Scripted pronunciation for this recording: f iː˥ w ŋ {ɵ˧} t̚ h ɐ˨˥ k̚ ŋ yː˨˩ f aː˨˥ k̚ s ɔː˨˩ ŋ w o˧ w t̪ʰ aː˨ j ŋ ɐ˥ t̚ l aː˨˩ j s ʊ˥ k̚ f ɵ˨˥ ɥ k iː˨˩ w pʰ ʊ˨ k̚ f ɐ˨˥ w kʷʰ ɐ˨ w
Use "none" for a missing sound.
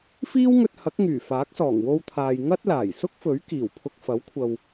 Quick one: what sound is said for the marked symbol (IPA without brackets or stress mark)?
ɵ˧